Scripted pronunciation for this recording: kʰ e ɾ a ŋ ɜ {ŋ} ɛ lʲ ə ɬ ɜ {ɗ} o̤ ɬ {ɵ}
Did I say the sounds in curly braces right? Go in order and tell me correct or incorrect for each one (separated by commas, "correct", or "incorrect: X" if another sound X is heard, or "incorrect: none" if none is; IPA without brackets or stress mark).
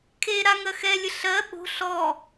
incorrect: x, incorrect: ɓ, incorrect: ɔ